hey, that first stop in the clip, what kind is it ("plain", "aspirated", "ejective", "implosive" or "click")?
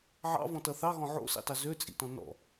plain